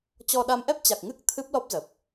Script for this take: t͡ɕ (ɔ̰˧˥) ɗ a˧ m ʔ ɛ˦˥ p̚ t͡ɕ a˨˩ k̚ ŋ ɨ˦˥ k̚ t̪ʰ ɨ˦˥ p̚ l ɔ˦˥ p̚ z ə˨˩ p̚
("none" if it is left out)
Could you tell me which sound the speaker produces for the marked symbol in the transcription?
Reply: ɔ˧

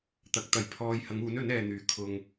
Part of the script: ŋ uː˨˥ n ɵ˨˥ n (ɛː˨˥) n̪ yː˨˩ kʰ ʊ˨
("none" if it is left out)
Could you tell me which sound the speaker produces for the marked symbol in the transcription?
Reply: ɛː˨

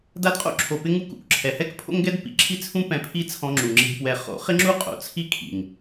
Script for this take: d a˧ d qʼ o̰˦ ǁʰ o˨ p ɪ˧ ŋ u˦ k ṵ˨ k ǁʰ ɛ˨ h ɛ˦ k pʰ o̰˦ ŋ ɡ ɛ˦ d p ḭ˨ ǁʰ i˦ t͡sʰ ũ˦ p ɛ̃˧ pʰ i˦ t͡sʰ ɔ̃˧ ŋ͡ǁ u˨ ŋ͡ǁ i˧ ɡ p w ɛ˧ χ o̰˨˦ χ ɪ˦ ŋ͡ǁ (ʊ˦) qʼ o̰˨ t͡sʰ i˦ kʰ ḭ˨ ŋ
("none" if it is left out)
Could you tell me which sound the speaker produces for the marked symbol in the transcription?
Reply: u˦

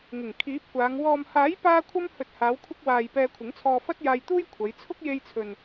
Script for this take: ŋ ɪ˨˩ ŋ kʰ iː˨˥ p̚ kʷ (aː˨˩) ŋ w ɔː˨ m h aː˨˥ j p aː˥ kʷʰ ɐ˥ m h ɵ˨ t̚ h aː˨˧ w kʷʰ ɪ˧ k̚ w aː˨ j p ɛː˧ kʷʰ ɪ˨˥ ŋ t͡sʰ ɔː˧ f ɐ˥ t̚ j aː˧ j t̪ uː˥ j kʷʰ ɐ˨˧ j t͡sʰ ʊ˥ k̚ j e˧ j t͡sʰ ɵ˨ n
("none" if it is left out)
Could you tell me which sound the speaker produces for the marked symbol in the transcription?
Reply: aː˨˧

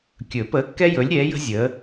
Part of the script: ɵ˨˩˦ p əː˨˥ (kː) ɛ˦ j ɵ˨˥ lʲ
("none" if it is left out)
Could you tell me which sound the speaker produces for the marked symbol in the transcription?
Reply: kː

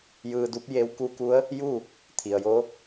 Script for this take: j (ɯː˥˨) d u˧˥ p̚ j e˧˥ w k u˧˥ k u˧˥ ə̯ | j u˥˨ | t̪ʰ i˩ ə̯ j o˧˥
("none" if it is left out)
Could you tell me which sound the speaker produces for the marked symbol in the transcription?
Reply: ɯː˧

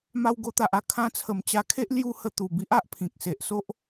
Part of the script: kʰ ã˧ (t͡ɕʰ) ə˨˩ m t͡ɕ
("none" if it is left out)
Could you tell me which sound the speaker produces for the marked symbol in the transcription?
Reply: t͡sʰ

